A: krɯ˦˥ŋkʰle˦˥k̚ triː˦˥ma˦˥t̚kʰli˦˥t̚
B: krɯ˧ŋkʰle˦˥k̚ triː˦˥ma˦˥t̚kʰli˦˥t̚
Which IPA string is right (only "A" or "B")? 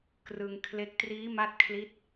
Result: B